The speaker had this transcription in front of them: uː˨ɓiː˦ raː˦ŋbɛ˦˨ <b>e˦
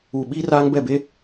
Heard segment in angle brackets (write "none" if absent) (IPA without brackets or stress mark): b